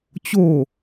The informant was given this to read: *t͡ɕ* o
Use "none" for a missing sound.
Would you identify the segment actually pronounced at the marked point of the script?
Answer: t͡ɕ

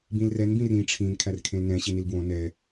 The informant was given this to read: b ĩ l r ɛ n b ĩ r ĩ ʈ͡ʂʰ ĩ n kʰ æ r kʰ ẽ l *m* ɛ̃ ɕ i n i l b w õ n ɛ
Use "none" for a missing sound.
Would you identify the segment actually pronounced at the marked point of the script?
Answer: n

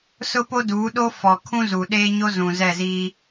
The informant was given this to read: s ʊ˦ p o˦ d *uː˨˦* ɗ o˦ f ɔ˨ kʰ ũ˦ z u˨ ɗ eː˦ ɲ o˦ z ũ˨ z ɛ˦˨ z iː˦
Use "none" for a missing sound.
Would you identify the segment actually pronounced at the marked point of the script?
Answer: uː˨˦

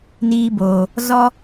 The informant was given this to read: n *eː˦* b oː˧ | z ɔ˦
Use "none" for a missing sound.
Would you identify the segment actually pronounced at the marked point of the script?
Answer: iː˦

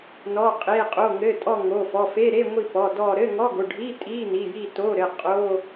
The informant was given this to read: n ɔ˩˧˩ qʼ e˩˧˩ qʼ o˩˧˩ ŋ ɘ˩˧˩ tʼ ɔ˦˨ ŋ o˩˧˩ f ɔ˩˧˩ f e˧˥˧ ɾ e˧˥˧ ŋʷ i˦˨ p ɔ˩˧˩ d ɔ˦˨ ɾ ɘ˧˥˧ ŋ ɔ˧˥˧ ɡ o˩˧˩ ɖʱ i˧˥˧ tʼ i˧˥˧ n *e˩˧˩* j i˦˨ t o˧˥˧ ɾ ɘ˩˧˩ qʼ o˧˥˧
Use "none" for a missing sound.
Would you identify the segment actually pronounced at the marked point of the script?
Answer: i˩˧˩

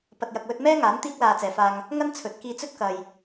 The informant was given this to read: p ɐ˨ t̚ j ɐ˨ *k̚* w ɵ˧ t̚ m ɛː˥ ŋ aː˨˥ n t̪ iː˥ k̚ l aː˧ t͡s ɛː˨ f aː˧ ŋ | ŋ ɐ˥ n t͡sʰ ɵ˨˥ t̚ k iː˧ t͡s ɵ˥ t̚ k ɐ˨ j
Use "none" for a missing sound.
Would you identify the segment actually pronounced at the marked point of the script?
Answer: k̚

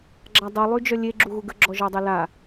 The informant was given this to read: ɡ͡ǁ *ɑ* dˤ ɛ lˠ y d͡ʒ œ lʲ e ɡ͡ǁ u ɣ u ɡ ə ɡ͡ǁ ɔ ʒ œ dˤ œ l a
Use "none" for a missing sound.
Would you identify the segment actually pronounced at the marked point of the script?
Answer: a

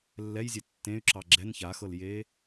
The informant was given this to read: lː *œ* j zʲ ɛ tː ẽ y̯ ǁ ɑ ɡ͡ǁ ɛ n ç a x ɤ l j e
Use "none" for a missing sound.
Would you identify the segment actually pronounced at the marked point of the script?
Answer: ɛ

